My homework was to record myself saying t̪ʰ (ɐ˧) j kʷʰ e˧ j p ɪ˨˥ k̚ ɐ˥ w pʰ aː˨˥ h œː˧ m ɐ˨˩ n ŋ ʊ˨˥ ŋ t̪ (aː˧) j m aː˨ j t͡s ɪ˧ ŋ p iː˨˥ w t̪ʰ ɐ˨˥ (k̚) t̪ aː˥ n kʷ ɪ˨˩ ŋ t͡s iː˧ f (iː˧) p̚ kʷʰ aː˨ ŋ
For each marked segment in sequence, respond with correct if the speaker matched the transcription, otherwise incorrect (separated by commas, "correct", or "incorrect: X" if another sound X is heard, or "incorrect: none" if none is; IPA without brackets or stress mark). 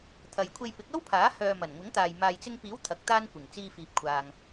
incorrect: ɐ˨, incorrect: aː˨, correct, incorrect: iː˨